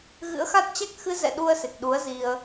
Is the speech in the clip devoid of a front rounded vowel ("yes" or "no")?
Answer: yes